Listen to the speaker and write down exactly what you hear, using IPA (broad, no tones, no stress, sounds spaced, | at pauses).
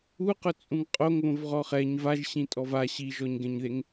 u q ʊ t͡sʼ ũ ŋ qʼ o ŋ β õ v ʁ ɔ χ ɛ ɲ v a ʒ ɕ ĩ tʼ ɔ v a ɕ i ʒ ɔ ɲ ɡ ɛ̃ ɲ ð e ŋ